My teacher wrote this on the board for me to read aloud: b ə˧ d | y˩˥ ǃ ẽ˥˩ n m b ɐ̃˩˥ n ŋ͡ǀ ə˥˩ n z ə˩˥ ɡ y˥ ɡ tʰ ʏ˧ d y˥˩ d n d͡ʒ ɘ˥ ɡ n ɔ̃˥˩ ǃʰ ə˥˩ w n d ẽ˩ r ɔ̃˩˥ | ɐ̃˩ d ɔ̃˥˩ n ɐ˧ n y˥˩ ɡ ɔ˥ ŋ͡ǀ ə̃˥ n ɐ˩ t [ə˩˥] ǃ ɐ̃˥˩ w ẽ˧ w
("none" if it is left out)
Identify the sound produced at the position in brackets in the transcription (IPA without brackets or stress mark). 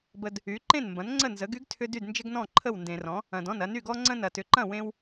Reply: ʏ˩˥